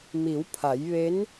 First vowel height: high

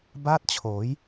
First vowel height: low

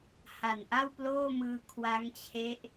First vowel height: low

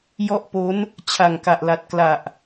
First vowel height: mid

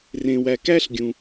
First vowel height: mid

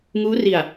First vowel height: high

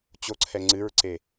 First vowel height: mid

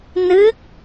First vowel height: high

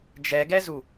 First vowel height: mid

